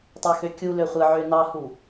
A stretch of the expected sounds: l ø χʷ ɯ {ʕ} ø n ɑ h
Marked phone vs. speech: correct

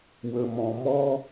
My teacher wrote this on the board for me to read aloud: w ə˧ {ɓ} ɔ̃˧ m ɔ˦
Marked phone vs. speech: incorrect: m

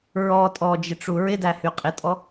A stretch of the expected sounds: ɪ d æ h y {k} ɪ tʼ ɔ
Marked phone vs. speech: incorrect: qʼ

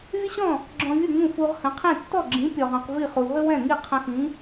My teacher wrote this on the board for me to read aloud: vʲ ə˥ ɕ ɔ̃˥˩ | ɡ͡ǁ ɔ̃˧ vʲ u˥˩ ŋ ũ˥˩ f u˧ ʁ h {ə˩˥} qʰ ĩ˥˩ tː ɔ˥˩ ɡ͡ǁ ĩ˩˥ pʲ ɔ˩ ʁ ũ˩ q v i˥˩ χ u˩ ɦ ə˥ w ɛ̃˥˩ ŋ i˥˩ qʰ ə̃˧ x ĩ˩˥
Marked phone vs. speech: incorrect: ə̃˩˥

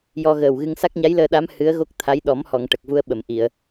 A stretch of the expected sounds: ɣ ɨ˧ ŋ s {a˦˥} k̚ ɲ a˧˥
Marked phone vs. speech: correct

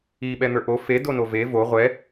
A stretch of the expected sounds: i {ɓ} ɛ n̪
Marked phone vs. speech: correct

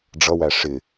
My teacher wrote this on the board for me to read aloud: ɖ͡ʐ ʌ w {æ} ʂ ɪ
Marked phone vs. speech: correct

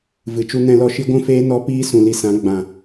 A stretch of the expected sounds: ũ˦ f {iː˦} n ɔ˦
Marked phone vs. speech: incorrect: eː˦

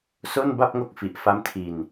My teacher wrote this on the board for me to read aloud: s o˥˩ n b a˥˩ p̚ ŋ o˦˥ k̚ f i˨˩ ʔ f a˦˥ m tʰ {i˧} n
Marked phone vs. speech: correct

